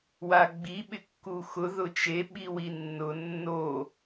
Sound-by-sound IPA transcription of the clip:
w a ɡ͡b i ɓ ɪ kː u x ʊ ð ʊ t͡ʃ e ɓ i w i nː ʊ nː o

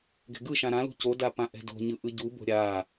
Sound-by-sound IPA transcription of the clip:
ɡ ɛ̤ ɡ ɯ ʃ ã ɾ ã l ṳ c o d a p ã ʔ ɛ̤ d o̤ ɲ ɯ ʔ ɯ ɟ u b o̤ ɾʲ a

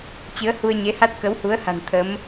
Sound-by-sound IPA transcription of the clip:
t͡ɕ ɨ˨˦ ə̯ h u˧ ə̯ ɲ e˨˦ h a˦˥ t̚ k ə˨˦ w h u˨˦ ə̯ h a̤˨˩ n t̪ʰ ə˨˦ m

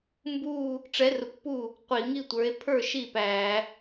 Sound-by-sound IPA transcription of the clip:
m b u˥˧ | ʈ͡ʂ ɛ˨˥ r ʊ˨˥ kʷ p u˥˩ | qʷ i˧˩˧ ŋ i˥˧ tʷ ə˞˨˥ e̯ pʰ ə˞˥˩ ʃ i˥˩ p æ˧˩˧

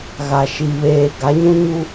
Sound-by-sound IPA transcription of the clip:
ɣ a˨ ʃ i˨ β eː˨ ɡ a˨˦ ɲ ũ˦ ɲ u˦

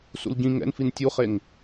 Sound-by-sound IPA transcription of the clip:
s ṵ l ɟ ĩ ŋ ɛ̰ n f i n tʲ u χ e ŋ

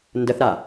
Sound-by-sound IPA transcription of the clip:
n d ə θ ɾ a

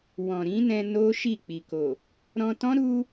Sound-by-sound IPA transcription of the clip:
w ɔ̃˨ ɾ ĩ˨˦ n ɛ̃˧ n o˦ ʃ i˦˨ k͡p i˨ k o˨ | ɾ ɔ̃˧ t ɔ̃˦ ɾ u˦

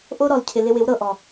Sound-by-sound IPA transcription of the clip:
ʔ o˦ ɾ ɔ˨ l cʰ ɪ˨ l ɪ˧ w ɪ˨˦ w ɾ ɤ˨ ʔ ɔ˨

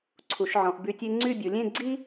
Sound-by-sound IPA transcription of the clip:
ǀʰ u˩˧ ʃ ʕ ɔ̃˩˧ ʔ b y˧ tʲ e˥ ŋ͡ǀ y˥˧ bʲ u˩˧ lʲ ẽ˥˧ ɡ͡ǀ i˥

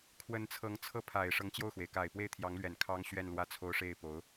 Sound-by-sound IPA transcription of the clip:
kʰ w ə˧˥ n t͡sʰ ɤ˧˥ ŋ t͡sʰ ɤ˥˩ pʰ a˨˩ ɪ̯ ʂ ɤ˧˥ ŋ t͡ɕ j o˥˩ ʊ̯ x w e˩ ɪ̯ k a˨˩ ɪ̯ p w e˥˩ ɪ̯ t̪ʰ j ɑ˧˥ ŋ l ɥ ɛ˨˩ n kʰ ɑ˥ ŋ ɕ ɥ ɛ˥˧ n l w ä˥˩ t͡sʰ o˥ ʊ̯ ʂ e˥˩ ɪ̯ p o˧˥ ʊ̯

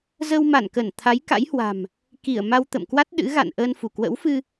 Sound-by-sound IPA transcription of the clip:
z ə˧ w m a˧˩ n k ə˧˩ n t̪ʰ a˨˦ j k a̰˧˥ j h w a̤˨˩ m | k i˧˩ ə̯ m a˧ w t̪ ə̰˧˨ m k w a˦˥ t̚ ɗ ɨ̰˧˥ ɣ a̰˧˨ n ʔ əː˧ n f u˧˩ k w ə̰˧˥ w f ɨ˧

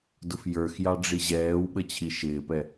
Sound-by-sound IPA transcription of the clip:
d ʊ f j ə˞ x j ɑ ɖ͡ʐ i ʑ ɛː w ɓ ə t͡ɕʰ i ʃ ɪː p ɛ

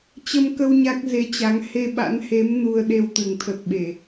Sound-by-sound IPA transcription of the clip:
t͡ɕ ə˧ m k ə˧ w ɲ a˦˥ k̚ z e˧ t͡ɕ a˨˦ ŋ h e˧ ɓ a̰˧˥ n h e˨˦ m n u˧ ə̯ ɗ e˧ w t̪ ɨ˧˩ ŋ t̪ʰ ə˨˩ t̚ ɓ e˧˩˨

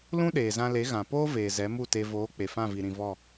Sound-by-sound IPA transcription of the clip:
l ũ˦ ɗ eː˨ z ã˧ l e˨˦ ɣ ã˨ p oː˦ v eː˨ z ɛ˨˦ m u˦˨ t e˧ v oː˨˦ k͡p e˨ f ã˦˨ v i˨ ɾ ĩ˧ v ɔ˦˨

